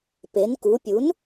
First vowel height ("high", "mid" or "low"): mid